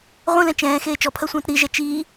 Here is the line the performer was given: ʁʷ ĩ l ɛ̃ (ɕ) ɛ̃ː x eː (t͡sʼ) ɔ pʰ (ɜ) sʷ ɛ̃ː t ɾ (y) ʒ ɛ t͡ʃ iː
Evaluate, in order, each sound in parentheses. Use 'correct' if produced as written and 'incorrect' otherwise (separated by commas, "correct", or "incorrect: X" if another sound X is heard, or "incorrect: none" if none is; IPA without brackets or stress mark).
incorrect: t͡ʃ, incorrect: t͡ʃ, correct, incorrect: i